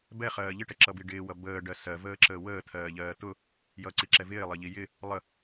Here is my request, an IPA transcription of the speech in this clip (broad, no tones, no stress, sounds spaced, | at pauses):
b ɛ χ ɜː ʎ ɪ ʈ ɛ ǁ ʌ b i ɖ ɪː w ʌ b əː ɖ ɜ s ɜ v əː ǁ əː w əː t̪ʰ ɜː ʎ ɜː t̪ ʊ | j ʌ ǀ i ǁ ɛ v ɪː lˠ ʌ ʎ i j ɪ | lˠ ə